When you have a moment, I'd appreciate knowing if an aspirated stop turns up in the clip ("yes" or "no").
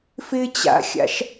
no